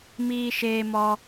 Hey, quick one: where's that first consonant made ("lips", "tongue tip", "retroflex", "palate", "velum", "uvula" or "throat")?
lips